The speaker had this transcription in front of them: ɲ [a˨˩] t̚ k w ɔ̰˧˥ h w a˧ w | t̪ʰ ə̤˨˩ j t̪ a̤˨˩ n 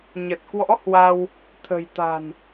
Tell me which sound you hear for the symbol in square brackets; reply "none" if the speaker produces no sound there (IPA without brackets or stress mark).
ə˨˩